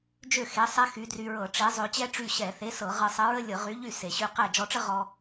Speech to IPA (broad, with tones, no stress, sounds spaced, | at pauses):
d͡ʒ ø˥˩ x e˨˥ sˤ ɛ˥ x y˨˥ d r y˧ ɹ ɤ˧˩˧ ʈ͡ʂ e˨˥ zˤ ø˧ t͡ɕ ɛ˥ ʈ͡ʂ y˥˩ ɕ ɛ˧˩˧ θ e˨˥ s ɤ˧˩˧ ʁ ɤ˧ sˤ ə˨˥ ɹ ə˥ lʲ ɤ˧˩˧ ʁ y˨˥ ʎ y˥˩ s e˩ ɕ y˧ q ɛ˥˩ d͡ʒ ɔ˧ ʈ͡ʂ ə˥ ʁ ɔ˧